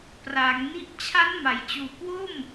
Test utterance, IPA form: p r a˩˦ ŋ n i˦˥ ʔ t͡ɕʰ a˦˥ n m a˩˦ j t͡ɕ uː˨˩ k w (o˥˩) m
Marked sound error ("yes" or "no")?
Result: no